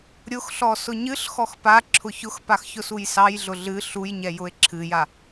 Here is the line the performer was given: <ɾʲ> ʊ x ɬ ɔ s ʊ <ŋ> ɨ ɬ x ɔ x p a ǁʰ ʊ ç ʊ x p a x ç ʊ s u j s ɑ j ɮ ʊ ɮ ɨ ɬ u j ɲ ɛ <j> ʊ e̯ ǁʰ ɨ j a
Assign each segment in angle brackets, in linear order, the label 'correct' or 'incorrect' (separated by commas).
correct, incorrect, correct